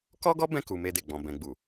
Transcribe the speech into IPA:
kɔ˦ɡɔ˦ bɛ̃˦˨ku˨ me˧de˨ɡ͡bɔ̃˨ bɛ̃˨ɡ͡bu˨

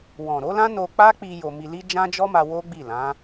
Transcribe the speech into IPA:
wɔ̃˨ɾo˨˦lã˦ no˧k͡pa˦k͡pi˧ jo˧mi˧li˦ d͡ʒã˦d͡ʒɔ˦ma˧ wo˦ɡ͡bi˦˨lã˨˦

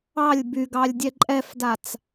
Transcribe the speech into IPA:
ɑlʲ byɡɑlʲdʲɛ ǃʼɛfdat͡s

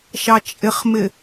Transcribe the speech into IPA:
ʃɑt͡ʃʼɪχmɪ

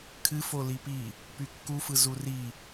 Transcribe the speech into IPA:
kʰɨfo lipi | pykːufɯ zuri

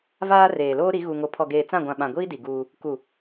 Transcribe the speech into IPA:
vaː˦reː˨ loː˦ɾi˨˦ ɣu˨ŋo˨ pʰɔ˨ɡeː˨ t͡sã˦˨ɡʷã˨ ɓã˨ɡʷiː˦ di˨ɡuː˦ | ku˨

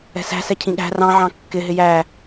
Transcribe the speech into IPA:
ɛ̤sæ̤sɛ cʰĩɠæ̤ rɑ̃ ʕɑ̃kːɪɦɪ jæ

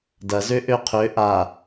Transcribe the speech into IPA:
dɐ zøʔøqʰø ʔa

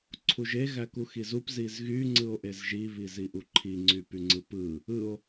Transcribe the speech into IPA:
ǀʰuʒe ɣækuxizup zizɣy ŋ͡ǀɯo̯ʔezʒi βiziʔuǃʰi ŋ͡ǀypyŋ͡ǀɯpɯ | ɯo̯

